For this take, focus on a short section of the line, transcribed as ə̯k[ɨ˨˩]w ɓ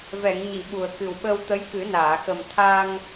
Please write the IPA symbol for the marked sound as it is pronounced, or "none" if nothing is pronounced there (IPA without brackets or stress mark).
ɨ˨˩